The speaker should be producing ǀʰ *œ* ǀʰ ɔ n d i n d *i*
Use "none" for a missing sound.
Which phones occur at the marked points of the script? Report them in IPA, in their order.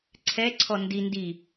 ɛ, i

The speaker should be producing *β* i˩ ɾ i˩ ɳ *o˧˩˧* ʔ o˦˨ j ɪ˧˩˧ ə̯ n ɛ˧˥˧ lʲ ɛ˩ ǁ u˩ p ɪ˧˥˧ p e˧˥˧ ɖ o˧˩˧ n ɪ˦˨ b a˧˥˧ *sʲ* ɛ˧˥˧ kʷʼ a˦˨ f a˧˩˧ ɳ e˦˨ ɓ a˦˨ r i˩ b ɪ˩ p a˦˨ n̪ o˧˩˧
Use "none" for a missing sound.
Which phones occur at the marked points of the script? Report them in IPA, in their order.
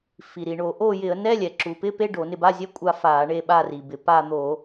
f, o˧˩˧, zʲ

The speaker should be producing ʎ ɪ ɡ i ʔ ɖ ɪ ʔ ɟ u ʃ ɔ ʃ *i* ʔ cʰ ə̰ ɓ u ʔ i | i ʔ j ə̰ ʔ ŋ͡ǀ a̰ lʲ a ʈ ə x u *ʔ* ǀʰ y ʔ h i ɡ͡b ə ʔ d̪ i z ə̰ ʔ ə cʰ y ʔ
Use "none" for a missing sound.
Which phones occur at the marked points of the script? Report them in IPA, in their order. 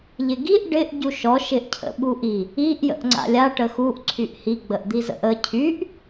ɪ, ʔ

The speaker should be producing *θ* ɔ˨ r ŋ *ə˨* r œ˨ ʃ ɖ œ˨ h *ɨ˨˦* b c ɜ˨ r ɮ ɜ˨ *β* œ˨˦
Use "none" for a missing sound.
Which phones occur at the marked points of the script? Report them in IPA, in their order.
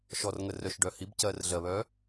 ʃ, ə˨, i˨˦, β

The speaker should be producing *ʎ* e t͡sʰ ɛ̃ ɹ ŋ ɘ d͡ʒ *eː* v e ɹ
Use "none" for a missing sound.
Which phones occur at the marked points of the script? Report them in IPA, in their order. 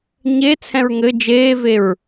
ɲ, eː

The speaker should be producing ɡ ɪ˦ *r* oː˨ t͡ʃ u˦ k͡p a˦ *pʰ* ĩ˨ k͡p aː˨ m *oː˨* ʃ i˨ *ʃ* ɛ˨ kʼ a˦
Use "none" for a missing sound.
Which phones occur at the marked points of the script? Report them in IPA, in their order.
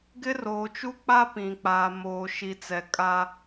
r, p, oː˨, t͡s

